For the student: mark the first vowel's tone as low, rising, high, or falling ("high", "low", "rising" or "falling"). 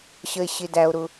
high